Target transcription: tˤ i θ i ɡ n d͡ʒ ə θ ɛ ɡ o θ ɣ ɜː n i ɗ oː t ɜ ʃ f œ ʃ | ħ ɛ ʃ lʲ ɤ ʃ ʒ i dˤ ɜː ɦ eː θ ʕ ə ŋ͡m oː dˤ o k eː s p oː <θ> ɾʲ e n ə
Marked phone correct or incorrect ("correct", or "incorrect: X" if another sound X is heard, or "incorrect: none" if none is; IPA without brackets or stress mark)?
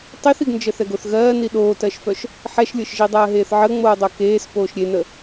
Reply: incorrect: ʃ